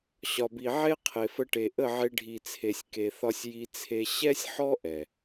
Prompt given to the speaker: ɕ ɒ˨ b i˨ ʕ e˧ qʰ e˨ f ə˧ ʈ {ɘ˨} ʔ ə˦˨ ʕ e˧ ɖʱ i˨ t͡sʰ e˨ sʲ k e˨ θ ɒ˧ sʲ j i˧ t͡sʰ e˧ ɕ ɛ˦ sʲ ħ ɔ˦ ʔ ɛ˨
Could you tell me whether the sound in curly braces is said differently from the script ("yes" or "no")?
yes